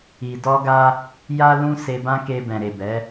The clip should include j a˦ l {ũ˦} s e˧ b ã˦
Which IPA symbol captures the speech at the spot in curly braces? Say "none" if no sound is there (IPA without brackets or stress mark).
ũ˦